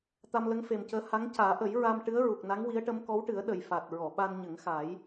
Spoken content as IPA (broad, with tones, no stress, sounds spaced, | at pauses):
t̪ a˧ m l ə˧˥ ŋ f e˨˩ m c əː˧˥ h a˧˥ ŋ c aː˨˩˦ ʔ ə˨˩˦ j ɹ a˧ m ʈ ɨ˧˥ ə̯ ɹ u˨˩ k̚ n a˧˥ ŋ w i˧˥ ə̯ ʈ ə˧˥ m k ɔ˧˥ w ʈ ɨ˨˩˦ ə̯ ɗ ə˨˩ j f a˨˩ t̚ ɹ ɔ˨˩˨ ɓ a˧ n ɲ ə˨˩˦ ŋ x a˨˩˦ j